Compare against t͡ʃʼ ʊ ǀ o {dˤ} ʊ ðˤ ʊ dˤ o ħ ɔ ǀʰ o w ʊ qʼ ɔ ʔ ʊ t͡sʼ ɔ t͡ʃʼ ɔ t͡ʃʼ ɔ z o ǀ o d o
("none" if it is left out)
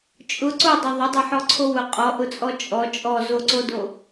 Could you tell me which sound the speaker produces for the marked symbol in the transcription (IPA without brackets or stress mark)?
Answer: dˤ